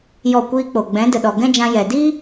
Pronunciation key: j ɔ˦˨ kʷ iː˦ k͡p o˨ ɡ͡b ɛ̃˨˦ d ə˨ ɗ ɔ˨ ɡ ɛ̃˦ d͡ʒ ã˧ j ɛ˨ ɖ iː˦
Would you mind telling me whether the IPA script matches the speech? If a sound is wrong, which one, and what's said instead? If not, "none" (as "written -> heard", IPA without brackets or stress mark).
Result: ɖ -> d